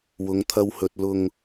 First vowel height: high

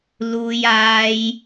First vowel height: high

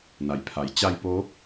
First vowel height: low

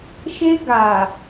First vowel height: mid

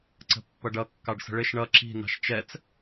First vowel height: mid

